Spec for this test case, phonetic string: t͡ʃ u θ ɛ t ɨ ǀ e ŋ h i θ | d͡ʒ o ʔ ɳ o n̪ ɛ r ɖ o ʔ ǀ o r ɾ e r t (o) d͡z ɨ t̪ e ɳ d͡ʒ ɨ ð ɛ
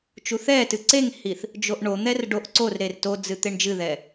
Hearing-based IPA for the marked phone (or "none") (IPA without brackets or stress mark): o